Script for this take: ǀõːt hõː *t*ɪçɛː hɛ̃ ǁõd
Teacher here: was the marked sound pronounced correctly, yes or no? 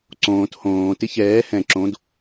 yes